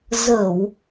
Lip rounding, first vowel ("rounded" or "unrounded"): unrounded